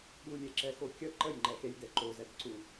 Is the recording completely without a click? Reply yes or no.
no